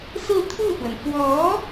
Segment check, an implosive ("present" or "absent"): absent